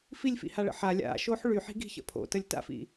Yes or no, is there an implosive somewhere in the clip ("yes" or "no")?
no